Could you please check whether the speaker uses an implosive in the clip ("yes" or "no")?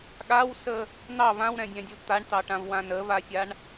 yes